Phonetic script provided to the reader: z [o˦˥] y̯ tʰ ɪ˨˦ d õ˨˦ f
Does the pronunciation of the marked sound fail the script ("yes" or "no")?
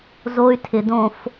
no